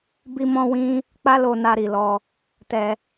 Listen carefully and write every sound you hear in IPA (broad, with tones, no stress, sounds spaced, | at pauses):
b i˦ m ɔ̃˦ w ĩ˦ | k͡p a˦ l o˧ n a˧ ɾ i˨ l ɔ˧ | t ɛ˧